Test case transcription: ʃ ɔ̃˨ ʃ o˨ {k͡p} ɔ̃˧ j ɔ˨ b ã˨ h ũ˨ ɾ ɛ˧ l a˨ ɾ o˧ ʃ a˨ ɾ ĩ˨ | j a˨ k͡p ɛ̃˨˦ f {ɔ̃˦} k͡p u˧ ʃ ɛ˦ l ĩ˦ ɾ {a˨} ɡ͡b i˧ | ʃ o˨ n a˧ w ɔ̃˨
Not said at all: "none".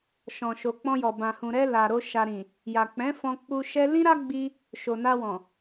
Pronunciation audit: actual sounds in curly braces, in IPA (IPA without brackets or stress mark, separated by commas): k͡p, ɔ̃˧, a˦